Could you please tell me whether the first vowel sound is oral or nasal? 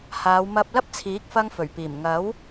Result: oral